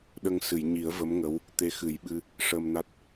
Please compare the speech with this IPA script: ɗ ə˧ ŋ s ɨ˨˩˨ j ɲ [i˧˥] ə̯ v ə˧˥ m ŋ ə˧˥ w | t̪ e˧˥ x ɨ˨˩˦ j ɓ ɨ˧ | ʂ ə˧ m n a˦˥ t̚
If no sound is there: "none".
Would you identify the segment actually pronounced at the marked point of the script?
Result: i˨˩˦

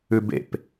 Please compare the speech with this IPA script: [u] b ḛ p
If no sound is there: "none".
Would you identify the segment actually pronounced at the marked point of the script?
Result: ʉ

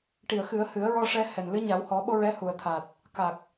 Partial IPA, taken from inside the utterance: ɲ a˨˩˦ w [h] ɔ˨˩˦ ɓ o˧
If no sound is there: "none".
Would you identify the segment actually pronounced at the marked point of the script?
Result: h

